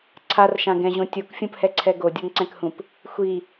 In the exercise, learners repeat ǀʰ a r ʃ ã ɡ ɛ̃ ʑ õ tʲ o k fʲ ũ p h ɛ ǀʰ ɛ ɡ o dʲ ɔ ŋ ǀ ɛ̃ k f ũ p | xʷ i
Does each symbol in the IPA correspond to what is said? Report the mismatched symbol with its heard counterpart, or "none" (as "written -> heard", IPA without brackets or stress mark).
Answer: f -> h